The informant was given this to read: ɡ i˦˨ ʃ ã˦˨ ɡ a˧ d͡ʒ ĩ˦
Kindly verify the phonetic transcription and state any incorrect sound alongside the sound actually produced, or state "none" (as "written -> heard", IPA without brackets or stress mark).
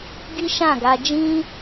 i˦˨ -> i˦